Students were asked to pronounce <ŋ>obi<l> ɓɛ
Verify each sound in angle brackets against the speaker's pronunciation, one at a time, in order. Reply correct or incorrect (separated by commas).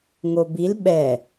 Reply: correct, correct